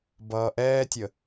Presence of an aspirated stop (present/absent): absent